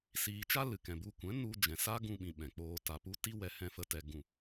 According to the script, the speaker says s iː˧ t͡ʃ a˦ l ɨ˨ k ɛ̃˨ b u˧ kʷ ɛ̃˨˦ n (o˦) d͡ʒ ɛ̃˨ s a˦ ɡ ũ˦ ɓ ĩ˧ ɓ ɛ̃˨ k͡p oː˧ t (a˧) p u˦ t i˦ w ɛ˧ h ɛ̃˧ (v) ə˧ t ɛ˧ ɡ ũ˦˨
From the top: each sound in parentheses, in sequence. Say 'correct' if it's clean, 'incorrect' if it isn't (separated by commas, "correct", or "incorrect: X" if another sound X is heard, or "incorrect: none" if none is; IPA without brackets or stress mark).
incorrect: u˦, correct, incorrect: f